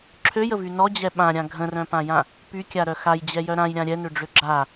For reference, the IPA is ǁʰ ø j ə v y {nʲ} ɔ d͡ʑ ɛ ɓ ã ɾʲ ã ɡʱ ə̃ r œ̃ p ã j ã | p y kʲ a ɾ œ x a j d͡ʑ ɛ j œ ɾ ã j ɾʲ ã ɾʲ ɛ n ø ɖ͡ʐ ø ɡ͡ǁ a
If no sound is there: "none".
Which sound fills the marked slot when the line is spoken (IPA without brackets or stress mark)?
n